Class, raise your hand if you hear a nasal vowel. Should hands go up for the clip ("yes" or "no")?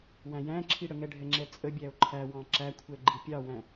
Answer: yes